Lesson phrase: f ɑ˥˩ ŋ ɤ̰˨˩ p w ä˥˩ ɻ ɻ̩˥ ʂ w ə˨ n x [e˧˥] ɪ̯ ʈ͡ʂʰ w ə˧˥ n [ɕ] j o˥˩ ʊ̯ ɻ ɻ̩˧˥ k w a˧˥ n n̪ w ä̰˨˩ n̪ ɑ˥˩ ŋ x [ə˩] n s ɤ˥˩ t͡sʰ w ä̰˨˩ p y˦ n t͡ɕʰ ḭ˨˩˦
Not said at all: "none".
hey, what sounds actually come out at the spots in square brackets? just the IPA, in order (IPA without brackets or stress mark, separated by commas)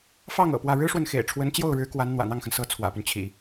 ḛ˨˩, t͡ɕ, ə˩